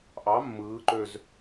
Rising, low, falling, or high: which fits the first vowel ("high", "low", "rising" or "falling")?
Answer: rising